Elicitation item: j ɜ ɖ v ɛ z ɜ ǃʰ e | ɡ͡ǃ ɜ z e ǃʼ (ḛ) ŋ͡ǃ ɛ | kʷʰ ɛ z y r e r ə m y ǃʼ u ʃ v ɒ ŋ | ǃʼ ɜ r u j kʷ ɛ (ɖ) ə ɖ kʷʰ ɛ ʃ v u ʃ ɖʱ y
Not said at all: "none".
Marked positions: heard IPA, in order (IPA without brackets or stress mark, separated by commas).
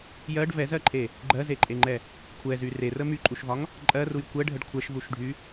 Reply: e, ɖʱ